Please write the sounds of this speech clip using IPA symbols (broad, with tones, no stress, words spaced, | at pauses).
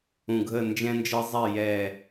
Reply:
ũ˧˩ɡʱə˥˨ nd͡ʒɛ̃˦nd͡ʒɤ˦zˤɛ˥˨ jɛ˧˩